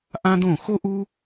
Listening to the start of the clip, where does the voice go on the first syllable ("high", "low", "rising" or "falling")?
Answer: high